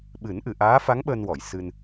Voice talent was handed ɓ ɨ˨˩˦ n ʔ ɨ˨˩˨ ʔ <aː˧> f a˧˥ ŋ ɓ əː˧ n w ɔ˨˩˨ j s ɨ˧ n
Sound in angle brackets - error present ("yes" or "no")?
yes